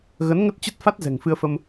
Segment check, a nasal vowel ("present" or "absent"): absent